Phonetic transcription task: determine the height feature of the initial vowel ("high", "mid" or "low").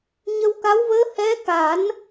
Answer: mid